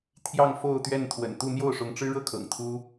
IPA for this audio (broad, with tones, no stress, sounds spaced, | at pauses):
t̪ʰ j ɑ˥˧ ŋ f o˥˧ ʊ̯ t̪ ɥ ɛ˥˩ n t̪ʰ w ə̰˨˩ n t̪ u˥˧ n̪ j o˥˩ ʊ̯ ʂ ʊ˧˥ ŋ ʈ͡ʂ ɻ̩˥ ɻ ɤ˥ kʰ ɤ̰˨˩ ŋ t̪ʰ u˥